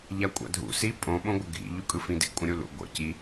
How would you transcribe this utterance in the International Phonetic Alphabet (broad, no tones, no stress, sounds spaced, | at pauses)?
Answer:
ʎ a kʷʼ a̰ dʱ ṵ s i pʼ õ ɓ õ ɡʷ ə ɡʱ ḭ ʎ u kʼ ɯ f ĩ d ḭ kʷʼ ə̃ ɾʲ u l ṵ ɡʷ ə̰ c i